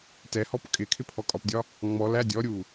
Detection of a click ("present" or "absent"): absent